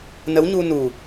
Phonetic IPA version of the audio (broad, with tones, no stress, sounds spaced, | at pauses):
n ə˧˥ w ɲ u˧ n u˨˩